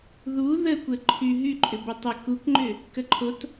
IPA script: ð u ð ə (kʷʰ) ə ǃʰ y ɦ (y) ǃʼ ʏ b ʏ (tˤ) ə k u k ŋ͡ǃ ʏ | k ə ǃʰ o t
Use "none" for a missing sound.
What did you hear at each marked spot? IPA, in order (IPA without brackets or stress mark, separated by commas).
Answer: kʷ, y, tˤ